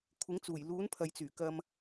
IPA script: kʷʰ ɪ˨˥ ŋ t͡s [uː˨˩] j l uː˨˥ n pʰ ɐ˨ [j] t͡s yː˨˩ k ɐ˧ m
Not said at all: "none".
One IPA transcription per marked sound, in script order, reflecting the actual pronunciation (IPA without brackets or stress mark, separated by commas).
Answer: uː˨˩, j